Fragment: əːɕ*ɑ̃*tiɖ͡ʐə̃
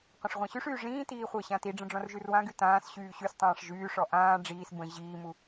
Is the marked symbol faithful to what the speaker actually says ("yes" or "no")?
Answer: no